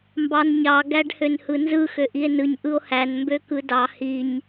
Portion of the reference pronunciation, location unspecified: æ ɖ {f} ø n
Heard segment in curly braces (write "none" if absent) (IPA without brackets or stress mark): h